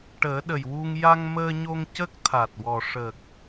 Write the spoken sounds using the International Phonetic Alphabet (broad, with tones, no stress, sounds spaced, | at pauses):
ʈ əː˨˩˦ ɗ ə˨˩ j w u˧ ŋ j a˧ ŋ m əː˧ ɲ o˧ ŋ c ə˦˥ k̚ t̪ʰ a˨˩ t̚ w ɔ˨˩ ʂ ə˨˩ k̚